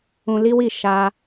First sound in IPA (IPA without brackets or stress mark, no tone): ũ